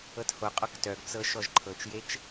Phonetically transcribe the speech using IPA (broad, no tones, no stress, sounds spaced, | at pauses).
ɤ t h o qʼ ɔ k t œ ɡ t͡s ɤ ʃ ɔ ʒ ǃʰ ɤ t͡ʃ j e t͡ʃ